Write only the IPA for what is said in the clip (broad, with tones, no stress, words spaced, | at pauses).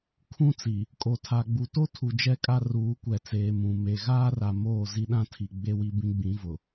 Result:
kʰũ˦t͡si˨ | kʼo˨tʰa˨ɡ͡bu˨to˦ tʰu˨ d͡ʒɛ˦kʼa˦ ruː˨˦kʷɛ˨t͡seː˨ mũ˨ me˨ɣaː˦ra˨ moː˦˨zi˦ɗã˦tʰi˨ ɡ͡be˦wi˦ bĩ˦ɡ͡bĩ˨˦vʊ˨